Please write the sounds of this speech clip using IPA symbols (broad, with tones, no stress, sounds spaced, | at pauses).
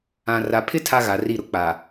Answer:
ã˨ r a˨ pʰ ɪ˦ tʰ a˦ ɣ a˨ r i˦˨ ɾ ʊ˦ k͡p a˨